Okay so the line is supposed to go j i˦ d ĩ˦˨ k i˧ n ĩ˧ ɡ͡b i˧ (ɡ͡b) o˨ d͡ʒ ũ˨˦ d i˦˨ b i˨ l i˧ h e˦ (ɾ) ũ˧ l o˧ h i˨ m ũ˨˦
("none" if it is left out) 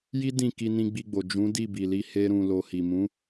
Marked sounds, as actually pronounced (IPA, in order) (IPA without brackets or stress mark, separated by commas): ɡ͡b, ɾ